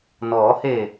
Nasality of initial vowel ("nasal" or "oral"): oral